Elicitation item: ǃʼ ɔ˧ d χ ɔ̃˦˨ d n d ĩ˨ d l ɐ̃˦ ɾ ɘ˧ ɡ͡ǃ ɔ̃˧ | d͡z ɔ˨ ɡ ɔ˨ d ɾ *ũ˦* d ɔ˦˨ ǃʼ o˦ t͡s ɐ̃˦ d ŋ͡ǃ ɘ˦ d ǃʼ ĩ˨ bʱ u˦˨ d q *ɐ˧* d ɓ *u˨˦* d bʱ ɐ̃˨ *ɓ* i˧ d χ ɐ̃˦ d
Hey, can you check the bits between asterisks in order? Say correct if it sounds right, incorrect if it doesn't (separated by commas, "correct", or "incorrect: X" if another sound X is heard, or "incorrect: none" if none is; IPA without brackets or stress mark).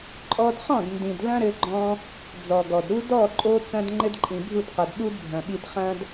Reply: incorrect: u˦, incorrect: ɐ˨, incorrect: u˦, correct